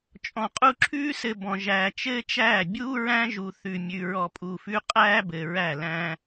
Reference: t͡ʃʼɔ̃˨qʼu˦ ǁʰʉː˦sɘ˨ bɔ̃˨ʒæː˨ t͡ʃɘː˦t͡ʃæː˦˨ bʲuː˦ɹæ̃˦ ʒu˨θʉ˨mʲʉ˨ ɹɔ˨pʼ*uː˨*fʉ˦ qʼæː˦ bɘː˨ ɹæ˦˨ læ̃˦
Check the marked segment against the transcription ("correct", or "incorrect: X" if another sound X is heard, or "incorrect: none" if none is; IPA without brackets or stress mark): correct